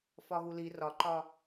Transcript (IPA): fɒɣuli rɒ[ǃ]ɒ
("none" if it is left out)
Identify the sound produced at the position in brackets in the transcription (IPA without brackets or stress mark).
ǃ